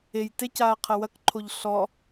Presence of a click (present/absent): present